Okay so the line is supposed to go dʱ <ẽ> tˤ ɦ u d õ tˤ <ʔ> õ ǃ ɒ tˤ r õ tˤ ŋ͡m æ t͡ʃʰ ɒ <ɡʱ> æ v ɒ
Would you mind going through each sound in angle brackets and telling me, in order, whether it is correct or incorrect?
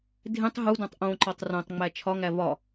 correct, correct, incorrect

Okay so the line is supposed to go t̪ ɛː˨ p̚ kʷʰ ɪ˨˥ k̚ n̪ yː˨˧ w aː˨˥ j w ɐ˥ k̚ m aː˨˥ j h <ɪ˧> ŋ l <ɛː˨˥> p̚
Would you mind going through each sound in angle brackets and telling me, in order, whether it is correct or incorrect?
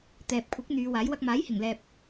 incorrect, incorrect

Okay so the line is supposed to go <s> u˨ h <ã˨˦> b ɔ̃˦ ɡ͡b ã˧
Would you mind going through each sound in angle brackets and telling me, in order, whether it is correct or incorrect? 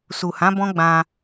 correct, correct

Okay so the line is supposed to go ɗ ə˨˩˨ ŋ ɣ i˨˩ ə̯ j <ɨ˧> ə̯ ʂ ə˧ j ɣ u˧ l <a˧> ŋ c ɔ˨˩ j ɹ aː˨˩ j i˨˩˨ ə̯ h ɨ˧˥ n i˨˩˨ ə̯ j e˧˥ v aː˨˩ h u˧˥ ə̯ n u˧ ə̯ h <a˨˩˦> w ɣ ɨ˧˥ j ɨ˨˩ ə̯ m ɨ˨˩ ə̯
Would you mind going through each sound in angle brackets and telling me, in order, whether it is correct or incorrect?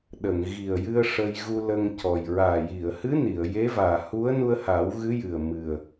correct, incorrect, incorrect

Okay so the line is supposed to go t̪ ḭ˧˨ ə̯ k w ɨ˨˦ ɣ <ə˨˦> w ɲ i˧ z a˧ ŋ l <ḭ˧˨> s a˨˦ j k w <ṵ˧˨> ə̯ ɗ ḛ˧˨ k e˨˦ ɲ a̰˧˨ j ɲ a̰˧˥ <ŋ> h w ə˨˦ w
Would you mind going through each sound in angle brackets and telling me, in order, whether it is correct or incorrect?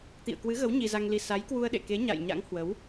correct, incorrect, incorrect, correct

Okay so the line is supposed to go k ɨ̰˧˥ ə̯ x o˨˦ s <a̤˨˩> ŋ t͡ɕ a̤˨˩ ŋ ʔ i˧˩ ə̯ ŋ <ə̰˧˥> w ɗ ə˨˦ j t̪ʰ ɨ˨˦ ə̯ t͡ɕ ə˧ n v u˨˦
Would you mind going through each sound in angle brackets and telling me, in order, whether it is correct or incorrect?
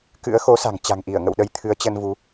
correct, incorrect

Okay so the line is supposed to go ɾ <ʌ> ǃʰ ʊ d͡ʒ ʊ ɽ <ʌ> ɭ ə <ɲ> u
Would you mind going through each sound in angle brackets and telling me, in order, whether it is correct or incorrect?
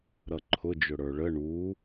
correct, incorrect, incorrect

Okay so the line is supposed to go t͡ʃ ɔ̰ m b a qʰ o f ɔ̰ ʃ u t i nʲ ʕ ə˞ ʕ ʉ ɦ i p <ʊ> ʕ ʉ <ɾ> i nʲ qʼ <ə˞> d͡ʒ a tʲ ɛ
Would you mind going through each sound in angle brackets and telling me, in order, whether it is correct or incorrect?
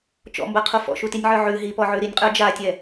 incorrect, correct, correct

